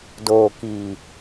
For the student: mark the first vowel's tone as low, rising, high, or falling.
low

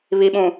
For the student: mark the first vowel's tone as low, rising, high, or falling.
low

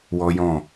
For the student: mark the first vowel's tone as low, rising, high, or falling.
high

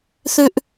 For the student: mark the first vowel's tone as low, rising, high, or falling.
high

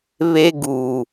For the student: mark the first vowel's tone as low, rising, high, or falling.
high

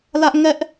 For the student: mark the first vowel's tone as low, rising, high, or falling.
high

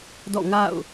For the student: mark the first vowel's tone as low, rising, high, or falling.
falling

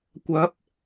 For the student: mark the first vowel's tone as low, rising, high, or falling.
rising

